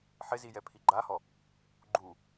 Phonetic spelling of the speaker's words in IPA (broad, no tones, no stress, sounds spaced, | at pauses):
ħ ɪ z i j ɛ pʰ i ɡ͡ǃ a h ɔ | ɡ͡ǃ u